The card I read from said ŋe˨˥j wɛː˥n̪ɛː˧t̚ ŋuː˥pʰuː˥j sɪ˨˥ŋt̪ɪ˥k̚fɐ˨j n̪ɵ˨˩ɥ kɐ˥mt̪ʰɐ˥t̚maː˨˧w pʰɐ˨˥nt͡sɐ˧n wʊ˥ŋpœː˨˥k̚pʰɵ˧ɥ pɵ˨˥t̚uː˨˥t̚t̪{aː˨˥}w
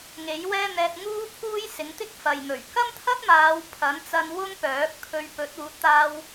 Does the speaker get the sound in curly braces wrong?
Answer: yes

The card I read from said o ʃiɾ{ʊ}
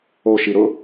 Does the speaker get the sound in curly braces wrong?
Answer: no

